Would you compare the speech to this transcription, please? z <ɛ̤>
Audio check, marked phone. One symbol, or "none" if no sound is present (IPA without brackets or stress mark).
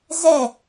ɛ